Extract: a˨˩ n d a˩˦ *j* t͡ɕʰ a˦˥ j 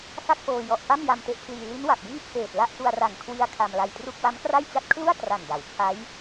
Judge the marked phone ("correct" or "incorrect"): incorrect